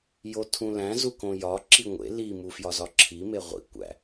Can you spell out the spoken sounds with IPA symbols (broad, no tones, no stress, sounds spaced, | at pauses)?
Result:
j o tʰ ũ l æ̃ z u k õ j ɒ ǁ i ŋʷ ḛ l i m u f j ɒ z ɒ ǁʰ i m e ʁʷ ḭ kʷ æ̰